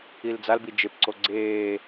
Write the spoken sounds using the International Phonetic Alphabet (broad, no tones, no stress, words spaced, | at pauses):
ild͡zalbi d͡ʒepǀo ɡ͡ǀeː